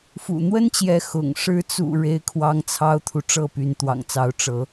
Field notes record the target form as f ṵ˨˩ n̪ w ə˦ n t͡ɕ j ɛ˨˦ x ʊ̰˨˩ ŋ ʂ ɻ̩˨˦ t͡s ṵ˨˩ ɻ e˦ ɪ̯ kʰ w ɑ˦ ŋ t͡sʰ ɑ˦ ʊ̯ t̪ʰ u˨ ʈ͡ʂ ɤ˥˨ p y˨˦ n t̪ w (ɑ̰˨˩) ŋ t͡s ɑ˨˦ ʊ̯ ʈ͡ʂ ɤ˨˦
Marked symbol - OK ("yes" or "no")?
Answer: yes